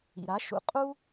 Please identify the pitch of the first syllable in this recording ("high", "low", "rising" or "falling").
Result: low